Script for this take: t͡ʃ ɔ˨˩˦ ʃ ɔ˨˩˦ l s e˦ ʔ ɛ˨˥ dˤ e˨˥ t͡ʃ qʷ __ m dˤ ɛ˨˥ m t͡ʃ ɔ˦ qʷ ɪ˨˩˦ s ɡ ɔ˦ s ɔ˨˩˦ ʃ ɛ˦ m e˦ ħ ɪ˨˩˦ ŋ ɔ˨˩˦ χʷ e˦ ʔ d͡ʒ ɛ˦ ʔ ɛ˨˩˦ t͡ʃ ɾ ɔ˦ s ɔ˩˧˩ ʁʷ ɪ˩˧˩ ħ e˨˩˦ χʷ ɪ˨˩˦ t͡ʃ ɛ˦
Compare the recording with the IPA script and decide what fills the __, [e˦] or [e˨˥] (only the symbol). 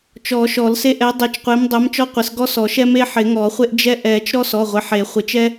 e˨˥